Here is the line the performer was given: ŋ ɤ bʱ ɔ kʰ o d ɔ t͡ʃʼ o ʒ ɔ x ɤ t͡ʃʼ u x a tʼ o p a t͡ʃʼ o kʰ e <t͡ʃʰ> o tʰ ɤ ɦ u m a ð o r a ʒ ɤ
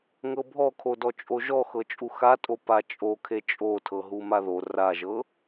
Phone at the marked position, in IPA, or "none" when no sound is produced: t͡ʃʼ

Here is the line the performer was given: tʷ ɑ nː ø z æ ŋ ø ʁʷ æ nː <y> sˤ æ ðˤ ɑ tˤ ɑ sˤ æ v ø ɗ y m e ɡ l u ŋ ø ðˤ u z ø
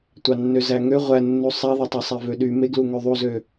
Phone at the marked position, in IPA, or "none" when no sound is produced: u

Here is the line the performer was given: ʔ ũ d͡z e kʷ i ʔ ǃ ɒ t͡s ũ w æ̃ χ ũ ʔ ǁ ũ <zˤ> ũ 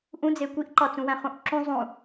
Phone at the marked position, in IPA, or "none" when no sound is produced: zˤ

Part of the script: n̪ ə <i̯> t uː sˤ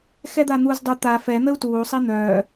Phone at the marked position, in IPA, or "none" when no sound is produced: u̯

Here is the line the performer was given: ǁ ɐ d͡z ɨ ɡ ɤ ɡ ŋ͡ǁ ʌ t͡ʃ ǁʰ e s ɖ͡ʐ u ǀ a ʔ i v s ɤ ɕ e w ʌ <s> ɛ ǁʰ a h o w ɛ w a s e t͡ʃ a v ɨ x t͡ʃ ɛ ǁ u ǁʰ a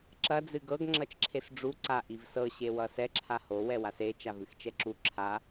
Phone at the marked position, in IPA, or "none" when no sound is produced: s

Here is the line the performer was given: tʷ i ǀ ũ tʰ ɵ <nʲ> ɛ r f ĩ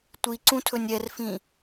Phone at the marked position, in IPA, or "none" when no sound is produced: nʲ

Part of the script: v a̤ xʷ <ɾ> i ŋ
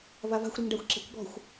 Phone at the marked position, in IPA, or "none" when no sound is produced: ɾ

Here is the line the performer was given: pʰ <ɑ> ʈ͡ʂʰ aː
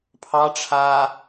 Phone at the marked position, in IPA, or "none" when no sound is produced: ɑ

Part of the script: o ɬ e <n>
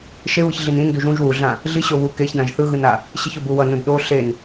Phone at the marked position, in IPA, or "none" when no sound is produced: n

